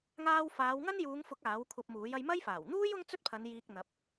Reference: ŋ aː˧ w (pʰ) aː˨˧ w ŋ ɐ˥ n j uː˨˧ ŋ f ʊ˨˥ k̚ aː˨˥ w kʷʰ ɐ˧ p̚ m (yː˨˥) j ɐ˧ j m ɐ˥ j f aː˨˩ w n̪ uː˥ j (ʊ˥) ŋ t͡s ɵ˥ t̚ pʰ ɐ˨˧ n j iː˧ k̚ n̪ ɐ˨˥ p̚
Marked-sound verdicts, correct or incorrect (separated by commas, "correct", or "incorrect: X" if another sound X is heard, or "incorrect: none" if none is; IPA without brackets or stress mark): incorrect: f, incorrect: uː˨˥, correct